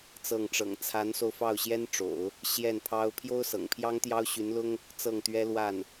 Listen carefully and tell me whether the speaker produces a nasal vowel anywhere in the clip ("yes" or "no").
no